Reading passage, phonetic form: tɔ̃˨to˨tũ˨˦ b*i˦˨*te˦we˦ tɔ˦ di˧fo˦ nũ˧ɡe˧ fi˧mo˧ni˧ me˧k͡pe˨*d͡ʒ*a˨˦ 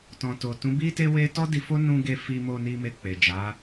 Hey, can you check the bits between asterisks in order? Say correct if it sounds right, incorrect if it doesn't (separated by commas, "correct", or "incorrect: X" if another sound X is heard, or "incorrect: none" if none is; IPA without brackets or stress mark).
incorrect: i˦, correct